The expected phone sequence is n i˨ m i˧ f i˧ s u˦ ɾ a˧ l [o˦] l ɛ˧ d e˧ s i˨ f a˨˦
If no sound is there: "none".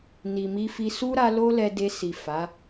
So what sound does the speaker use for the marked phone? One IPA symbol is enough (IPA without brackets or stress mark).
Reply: o˦